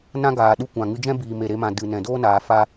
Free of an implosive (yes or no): no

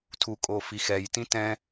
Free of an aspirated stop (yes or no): no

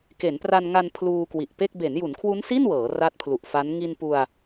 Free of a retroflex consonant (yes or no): yes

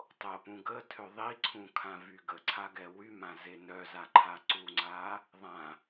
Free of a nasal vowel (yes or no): no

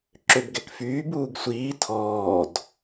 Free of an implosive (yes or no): yes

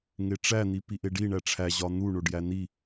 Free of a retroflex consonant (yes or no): no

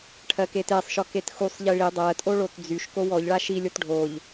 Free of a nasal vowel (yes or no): yes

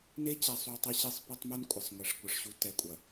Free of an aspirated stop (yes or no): yes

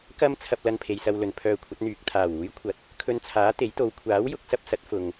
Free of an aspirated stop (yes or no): no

